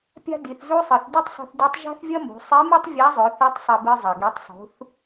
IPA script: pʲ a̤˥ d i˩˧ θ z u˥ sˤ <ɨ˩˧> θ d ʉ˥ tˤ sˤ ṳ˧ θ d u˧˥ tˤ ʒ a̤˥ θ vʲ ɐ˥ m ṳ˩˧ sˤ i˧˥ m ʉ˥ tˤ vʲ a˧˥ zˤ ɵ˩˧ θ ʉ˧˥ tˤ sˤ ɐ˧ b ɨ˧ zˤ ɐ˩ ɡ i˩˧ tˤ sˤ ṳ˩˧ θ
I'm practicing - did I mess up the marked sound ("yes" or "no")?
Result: no